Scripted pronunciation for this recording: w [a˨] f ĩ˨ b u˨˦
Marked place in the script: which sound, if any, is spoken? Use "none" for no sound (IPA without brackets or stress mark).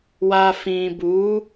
a˨